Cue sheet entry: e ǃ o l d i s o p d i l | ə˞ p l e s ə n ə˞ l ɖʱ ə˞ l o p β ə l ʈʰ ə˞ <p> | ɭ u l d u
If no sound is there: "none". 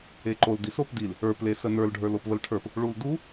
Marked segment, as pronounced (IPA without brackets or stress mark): p